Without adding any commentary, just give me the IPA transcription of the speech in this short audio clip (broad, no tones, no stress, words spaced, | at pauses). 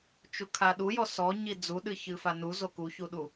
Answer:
t͡ʃukʰaɗujɔ sɔ ɲid͡zuɗɨ çɨfanu zokuçuɗu